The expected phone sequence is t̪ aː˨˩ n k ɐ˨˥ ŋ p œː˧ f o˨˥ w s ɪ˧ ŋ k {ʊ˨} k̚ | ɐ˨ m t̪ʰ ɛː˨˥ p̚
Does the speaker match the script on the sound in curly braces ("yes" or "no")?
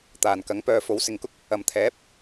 no